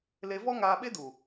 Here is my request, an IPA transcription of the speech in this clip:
le˧vɔ˦ ŋaː˧ɓe˦du˨

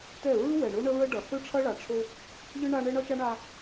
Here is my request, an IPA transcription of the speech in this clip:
tɛ˦˨ ɹɯ˦wɛ˨ɳo˦ ɳə˦ɹə˦ɖʌ˨ θɯ˦ʈ͡ʂʰʌ˦ɭa˨ʈ͡ʂʰo˦ | ʎɯ˦ ɳa˦ ɳɛ˦ɳʌ˦t͡ʃa˦ɳa˦

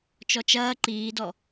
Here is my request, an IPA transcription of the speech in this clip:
t͡ʃɔt͡ʃɐː ǃiːdɔ

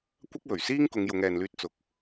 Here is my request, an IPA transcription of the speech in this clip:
kʷɐ˥k̚wɵ˨˩ɥsiː˥ŋ kʊ˨˧ŋjʊ˨˧ŋɛː˨nlyː˧t̚ t͡sʊ˨k̚

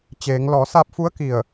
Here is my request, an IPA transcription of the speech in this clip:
t͡ɕeː˩˧ŋ lɔː˩˧saː˧p̚fu˧˥ə̯ ki˧˩ə̯

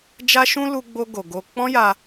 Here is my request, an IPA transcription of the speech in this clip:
d͡ʒa˦ʃũ˦ lu˦ɡ͡bo˦ ɡo˧ɡo˦ k͡pɔ̃˦ja˧

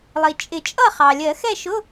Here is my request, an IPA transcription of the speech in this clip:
lˠi˩t͡ʃʼɪ˨˩˦t͡ʃʼʌ˥˨ χɑ˩ lʲɜ˨˩˦xɛ˥˨ʃʊ˧˥˧

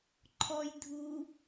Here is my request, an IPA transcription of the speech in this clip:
ǃʰɔj dʱu

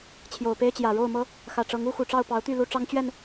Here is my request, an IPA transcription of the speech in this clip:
t͡ɕʰjo˨˩ʊ̯pe˦ɪ̯t͡ɕjä˨˩ ɻo˥˨ʊ̯mɤ˦ | xä˨˩ʈ͡ʂɤ˨˦ŋu˦ xu˨˩ʈ͡ʂɑ˥˨ʊ̯ pɑ˨˦ʊ̯t̪y˥˨ lu˦ʈ͡ʂɑ˦ŋt͡ɕɥɛ˥˨n

